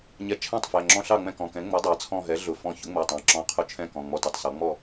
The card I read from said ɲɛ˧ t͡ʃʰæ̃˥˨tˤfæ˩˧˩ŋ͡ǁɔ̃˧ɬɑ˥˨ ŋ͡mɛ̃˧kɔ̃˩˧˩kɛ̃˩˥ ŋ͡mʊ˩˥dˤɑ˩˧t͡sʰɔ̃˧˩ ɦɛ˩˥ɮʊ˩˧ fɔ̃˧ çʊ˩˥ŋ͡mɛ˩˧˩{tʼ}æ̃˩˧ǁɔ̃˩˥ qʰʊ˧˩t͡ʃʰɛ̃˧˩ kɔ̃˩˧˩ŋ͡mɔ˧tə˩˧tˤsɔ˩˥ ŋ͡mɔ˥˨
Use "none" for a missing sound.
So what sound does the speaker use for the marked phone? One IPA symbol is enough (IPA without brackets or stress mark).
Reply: tˤ